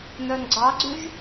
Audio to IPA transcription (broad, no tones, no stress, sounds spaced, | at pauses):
n̪ œ n ɡ͡ǀ ɑ ɡ͡ǀ ʉ ʒ